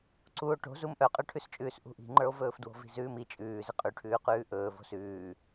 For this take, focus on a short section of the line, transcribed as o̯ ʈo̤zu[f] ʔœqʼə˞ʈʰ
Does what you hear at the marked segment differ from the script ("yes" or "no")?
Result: yes